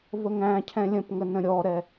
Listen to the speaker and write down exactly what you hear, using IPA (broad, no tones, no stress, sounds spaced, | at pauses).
v ə ŋ æ̃ cʰ ɛ̃ lʲ ə̃ p ŋ ə n ə̃ ɾʲ ɔ ɾ ɛ